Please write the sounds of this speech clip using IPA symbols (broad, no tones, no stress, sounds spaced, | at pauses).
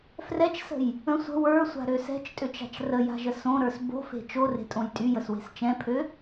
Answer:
f r ɛ t͡ʃ s ə̤ j | ə̃ sʷ ə̤ w ə˞ sʷ a̤ ɾ ø s ɛ̤ t͡ʃ tʼ ø t͡ʃ a̤ t͡ʃ r ə j a̤ ʒ ə s õ ɾ ə˞ s b o̤ f e̤ t͡ʃ o r e̤ tʼ õ j tʼ y j ə s w e̤ s t͡ʃ ɛ̃ pʰ ø